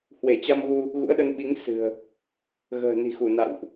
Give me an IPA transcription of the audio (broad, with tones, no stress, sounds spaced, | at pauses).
h w e˧˩ t͡ɕ a˧ m ɣ u˧ | ɣ ṵ˧˥ ə̯ ɗ ə˧ n ɓ i˨˦ ŋ s ɨ̤˨˩ ə̯ | ɣ ə̤ː˨˩ n i̤˨˩ x u˧˩ n a̰˧˨ w ʔ